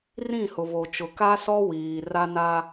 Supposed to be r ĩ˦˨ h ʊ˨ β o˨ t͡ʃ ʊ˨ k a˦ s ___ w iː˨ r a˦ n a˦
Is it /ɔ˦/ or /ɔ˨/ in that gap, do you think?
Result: ɔ˦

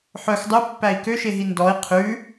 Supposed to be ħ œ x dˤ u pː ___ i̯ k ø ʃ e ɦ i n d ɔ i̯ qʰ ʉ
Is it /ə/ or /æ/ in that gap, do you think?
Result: æ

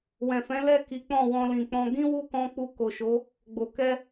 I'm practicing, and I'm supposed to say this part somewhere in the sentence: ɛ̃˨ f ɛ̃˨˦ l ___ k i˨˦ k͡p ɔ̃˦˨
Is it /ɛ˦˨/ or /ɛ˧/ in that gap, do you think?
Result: ɛ˦˨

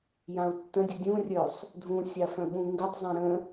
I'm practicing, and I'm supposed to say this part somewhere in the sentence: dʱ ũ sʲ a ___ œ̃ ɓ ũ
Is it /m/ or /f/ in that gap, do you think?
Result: f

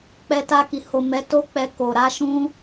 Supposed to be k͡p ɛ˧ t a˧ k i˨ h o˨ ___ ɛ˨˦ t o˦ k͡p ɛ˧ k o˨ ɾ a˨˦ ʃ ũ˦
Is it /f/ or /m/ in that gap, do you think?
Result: m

